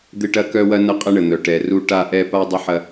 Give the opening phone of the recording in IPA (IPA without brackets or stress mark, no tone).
d̪